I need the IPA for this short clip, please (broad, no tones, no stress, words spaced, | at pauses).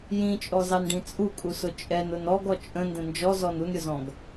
jĩt͡ʃʼɔzɑnɖĩ t͡sʼukʼusʊ t͡ʃʼɛnʊn ɔɡɔ t͡ʃʼə̃ndə̃ nd͡ʒɔzɔn unɾʲʊzɔ̃ɡ